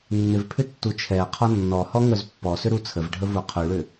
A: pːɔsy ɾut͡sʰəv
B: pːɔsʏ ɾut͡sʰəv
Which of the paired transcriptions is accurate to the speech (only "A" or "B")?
B